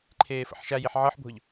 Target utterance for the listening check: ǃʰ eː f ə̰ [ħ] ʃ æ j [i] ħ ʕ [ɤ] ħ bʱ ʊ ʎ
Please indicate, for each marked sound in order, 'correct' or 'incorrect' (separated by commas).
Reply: correct, correct, correct